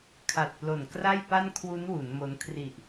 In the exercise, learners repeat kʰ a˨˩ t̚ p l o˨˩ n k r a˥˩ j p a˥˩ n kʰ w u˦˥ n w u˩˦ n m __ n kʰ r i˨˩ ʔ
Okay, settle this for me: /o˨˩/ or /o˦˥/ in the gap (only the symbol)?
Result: o˦˥